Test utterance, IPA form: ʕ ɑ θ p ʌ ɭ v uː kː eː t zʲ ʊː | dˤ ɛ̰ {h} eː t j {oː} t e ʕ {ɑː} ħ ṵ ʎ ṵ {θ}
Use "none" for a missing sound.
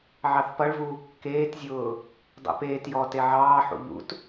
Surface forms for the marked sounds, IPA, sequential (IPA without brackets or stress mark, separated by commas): p, ɔː, ɑː, t